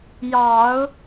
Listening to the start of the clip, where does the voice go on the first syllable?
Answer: low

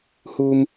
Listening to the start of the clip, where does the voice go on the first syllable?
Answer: low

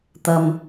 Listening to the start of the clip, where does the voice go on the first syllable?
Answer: low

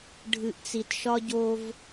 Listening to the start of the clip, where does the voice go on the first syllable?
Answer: low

